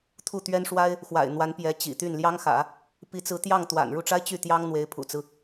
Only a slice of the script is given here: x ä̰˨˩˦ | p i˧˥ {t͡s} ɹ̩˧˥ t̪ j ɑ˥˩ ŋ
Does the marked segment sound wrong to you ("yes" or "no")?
no